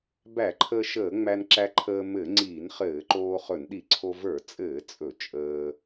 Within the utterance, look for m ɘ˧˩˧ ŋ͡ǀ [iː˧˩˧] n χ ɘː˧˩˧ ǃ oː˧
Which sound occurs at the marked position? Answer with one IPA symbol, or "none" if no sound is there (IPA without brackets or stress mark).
iː˧˩˧